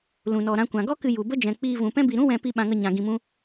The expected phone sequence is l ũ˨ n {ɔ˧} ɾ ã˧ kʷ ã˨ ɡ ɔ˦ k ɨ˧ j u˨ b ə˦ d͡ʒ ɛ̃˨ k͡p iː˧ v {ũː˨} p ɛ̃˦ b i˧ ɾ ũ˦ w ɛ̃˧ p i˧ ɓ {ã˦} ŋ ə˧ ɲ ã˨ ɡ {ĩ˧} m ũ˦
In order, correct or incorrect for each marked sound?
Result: incorrect: ɔ˨, incorrect: ũ˨, incorrect: ã˧, correct

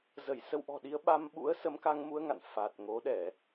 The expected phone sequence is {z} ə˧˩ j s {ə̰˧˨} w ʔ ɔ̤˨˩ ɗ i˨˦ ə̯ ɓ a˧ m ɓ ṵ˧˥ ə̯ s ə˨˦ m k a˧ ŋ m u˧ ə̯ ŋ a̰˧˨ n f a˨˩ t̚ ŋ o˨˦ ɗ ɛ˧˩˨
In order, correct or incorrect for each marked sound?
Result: correct, incorrect: ə˧

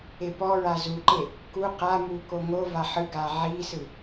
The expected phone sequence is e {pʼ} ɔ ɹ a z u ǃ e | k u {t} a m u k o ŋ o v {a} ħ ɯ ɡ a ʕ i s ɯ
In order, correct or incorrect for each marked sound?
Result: incorrect: p, incorrect: q, correct

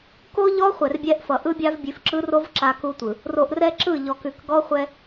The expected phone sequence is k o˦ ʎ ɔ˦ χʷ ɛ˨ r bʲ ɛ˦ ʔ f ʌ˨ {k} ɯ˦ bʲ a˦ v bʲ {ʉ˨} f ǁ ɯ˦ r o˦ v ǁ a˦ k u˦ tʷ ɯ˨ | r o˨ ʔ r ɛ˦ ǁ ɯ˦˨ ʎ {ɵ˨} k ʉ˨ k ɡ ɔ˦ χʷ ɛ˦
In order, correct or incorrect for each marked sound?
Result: incorrect: ʔ, correct, incorrect: ɔ˨

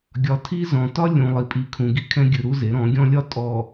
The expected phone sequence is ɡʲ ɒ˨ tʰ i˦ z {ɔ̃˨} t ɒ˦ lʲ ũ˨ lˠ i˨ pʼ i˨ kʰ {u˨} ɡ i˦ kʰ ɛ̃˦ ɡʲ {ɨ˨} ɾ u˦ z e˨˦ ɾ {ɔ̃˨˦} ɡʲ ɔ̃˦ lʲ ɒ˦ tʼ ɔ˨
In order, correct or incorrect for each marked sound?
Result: correct, incorrect: ũ˨, correct, correct

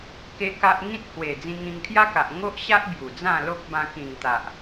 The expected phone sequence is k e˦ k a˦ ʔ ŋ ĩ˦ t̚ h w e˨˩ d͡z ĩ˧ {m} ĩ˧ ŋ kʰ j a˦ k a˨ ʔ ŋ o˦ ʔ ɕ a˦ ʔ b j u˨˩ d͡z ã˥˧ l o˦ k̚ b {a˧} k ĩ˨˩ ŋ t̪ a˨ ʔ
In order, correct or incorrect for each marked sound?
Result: incorrect: ŋ, incorrect: ã˧

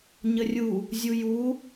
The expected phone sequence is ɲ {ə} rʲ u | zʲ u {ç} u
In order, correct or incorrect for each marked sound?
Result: correct, incorrect: j

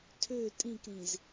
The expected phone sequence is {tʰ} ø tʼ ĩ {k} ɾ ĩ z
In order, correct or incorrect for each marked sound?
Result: correct, correct

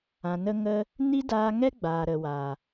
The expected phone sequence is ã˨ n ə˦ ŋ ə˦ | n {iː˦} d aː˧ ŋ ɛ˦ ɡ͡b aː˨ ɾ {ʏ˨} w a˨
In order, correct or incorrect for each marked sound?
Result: incorrect: i˦, incorrect: ə˨

